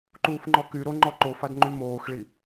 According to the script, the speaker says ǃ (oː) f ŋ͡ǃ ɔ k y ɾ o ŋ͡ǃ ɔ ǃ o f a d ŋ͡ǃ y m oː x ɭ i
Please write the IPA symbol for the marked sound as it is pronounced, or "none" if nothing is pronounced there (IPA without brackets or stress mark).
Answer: uː